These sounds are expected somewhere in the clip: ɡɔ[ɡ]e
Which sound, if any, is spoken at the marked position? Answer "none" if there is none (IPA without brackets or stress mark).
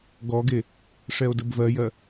ɡ